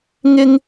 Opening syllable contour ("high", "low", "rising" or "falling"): high